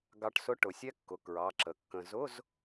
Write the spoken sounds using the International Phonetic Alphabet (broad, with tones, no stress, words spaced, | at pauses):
ɡɑ˧ʈsʊ˧˥˧ ʈʊ˩˧sʲɛ˦˥kːʊ˩˧˩ kɹɑ˩˧˩ǁə˩˧ kːə̃˧ zʊ˧˥˧z